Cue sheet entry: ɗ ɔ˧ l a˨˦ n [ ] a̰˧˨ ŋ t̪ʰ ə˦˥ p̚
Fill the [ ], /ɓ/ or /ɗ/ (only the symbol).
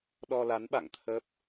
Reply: ɓ